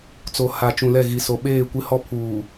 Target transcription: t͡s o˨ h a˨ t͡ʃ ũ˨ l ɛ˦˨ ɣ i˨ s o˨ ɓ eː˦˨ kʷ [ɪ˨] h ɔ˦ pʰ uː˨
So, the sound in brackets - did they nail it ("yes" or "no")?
no